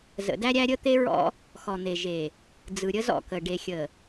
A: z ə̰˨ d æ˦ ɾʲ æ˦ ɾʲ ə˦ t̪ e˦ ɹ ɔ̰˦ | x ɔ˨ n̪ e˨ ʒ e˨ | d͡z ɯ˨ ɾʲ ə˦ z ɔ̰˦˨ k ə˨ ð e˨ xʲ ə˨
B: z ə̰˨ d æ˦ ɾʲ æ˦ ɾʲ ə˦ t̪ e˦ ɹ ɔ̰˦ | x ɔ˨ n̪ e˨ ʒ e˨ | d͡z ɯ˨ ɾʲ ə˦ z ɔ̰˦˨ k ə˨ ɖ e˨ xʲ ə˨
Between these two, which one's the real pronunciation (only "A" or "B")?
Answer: B